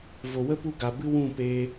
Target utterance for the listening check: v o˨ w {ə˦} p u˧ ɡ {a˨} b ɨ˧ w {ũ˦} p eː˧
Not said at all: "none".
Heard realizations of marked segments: ə˦, a˨, ũ˦˨

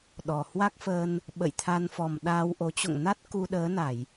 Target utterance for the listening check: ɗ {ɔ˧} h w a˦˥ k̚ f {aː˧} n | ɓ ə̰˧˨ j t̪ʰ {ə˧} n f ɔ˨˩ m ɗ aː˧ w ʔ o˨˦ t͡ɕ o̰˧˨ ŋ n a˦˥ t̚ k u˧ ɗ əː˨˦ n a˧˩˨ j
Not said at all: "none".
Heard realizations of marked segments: ɔ˨˩, əː˧, a˧

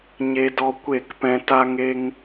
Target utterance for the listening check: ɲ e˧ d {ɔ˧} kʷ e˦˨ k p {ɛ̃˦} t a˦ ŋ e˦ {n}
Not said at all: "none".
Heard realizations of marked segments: ɔ˧, ɛ̃˦, ŋ

